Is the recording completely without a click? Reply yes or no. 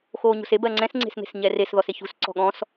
no